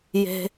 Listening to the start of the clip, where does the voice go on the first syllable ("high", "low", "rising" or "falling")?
low